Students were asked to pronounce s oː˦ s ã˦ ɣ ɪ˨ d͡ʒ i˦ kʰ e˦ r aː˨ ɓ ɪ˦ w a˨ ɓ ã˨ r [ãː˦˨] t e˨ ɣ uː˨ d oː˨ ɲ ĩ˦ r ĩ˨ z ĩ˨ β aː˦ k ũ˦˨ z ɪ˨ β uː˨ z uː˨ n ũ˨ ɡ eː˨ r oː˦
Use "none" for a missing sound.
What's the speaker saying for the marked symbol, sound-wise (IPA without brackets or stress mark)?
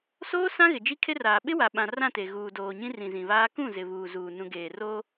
ã˦˨